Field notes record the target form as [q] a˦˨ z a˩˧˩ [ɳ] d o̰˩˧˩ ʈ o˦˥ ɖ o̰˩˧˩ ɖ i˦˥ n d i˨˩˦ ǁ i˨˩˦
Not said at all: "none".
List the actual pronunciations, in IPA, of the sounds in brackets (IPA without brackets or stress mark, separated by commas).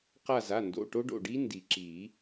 q, n